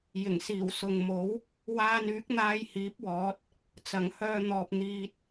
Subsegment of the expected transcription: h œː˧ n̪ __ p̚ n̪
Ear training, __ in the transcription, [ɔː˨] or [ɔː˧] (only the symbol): ɔː˨